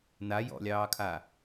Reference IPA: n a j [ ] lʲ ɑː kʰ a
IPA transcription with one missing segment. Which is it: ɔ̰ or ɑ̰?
ɔ̰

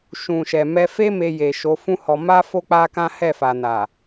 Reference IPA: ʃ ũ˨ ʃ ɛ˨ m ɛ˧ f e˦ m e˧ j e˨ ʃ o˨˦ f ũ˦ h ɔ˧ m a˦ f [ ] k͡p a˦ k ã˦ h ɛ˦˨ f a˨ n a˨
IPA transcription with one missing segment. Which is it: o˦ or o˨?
o˦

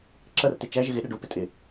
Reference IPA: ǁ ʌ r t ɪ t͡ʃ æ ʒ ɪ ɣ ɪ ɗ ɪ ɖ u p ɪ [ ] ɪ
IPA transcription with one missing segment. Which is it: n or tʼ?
tʼ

